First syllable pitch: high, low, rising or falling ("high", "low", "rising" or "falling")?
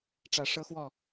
low